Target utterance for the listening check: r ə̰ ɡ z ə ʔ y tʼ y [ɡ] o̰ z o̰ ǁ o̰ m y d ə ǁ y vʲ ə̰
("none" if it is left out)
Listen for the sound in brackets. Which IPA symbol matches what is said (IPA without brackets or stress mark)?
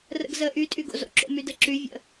ɡ